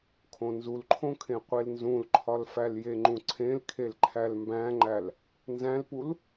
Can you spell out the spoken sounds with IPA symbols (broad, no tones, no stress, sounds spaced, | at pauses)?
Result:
kʰ õ n z u l ǃʰ õ kʰ ẽ qʷ e l n z ũ l ǃʰ ɒ l f æ l j e ŋ͡ǃ ũ ǀʰ ẽ l kʰ e l ǃʰ æ l m b æ̃ ŋ͡ǃ æ l | n z æ̃ l p u l